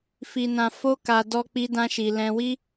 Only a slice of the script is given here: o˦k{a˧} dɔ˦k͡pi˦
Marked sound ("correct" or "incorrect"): correct